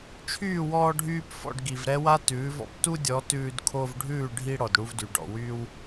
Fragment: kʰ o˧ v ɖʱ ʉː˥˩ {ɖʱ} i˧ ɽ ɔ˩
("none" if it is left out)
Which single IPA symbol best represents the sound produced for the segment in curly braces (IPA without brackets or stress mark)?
ɖʱ